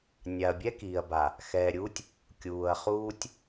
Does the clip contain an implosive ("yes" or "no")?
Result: no